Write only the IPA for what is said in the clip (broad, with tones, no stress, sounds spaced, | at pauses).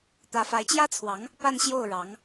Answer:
t̪ ä˧˥ f a˧˥ ɪ̯ t͡ɕ j ä˥ t͡sʰ w ɑ˧˥ ŋ | p a˥˧ n ɕ j o˥˩ ʊ̯ ɻ ɑ˧˥ ŋ